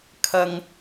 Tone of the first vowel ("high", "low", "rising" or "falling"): high